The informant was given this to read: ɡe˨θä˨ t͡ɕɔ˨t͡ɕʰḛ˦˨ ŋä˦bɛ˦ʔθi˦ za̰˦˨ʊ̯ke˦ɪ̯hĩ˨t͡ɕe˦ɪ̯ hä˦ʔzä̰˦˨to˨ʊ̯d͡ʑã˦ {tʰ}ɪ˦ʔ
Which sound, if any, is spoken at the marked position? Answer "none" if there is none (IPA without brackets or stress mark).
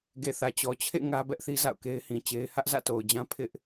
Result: pʰ